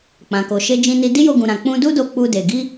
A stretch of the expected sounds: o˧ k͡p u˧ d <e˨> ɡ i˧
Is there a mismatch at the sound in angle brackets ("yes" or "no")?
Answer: no